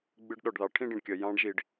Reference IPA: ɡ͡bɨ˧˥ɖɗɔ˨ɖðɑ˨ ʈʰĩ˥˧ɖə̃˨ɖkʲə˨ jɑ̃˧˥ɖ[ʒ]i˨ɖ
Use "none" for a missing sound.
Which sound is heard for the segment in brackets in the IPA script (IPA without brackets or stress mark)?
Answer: ʒ